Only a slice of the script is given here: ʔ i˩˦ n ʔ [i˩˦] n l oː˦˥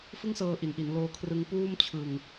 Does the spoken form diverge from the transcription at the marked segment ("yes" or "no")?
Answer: no